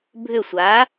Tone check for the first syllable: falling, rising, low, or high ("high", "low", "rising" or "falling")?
falling